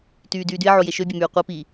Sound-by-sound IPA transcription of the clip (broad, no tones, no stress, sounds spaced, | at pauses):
t yː d yː d y e̯ ʕ o j e ʃ ø bʲ e m yː qʷ e p i